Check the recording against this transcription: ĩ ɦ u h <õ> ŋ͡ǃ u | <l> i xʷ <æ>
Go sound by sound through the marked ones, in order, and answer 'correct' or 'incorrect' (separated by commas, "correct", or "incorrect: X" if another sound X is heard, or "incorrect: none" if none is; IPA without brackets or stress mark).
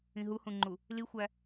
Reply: incorrect: ũ, correct, correct